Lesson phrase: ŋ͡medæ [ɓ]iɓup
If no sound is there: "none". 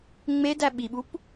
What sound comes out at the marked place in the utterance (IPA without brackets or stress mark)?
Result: ɓ